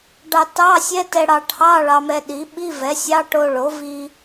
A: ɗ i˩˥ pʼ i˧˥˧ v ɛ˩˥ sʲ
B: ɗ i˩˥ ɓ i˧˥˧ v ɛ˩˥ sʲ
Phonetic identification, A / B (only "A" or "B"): B